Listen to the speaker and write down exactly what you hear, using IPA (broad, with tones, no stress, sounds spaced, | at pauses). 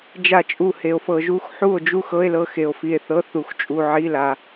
d͡ʒ a˥˧ t͡ʃʼ u˥˧ h e˧ o̯ f ɤ˧ ʒ u˥˧ x ħ u˥˧ o̯ d͡ʒ u˥˧ x ɤ˧˥˧ e̯ l ɤ˥˧ x e˧ o̯ f i˧ e̯ θ ɤ˧˥˧ θ u˧ x t͡ʃʼ u˧ ʕ i˧˥˧ l a˧